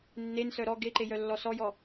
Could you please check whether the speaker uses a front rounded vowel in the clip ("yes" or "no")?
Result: yes